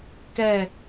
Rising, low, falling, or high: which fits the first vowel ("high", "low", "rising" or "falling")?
falling